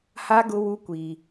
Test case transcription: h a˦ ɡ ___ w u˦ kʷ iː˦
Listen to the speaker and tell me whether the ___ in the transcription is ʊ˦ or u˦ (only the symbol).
ʊ˦